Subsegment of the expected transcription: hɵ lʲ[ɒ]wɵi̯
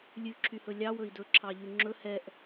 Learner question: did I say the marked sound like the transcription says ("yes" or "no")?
no